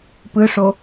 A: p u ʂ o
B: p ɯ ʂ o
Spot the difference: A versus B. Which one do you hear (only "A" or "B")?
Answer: B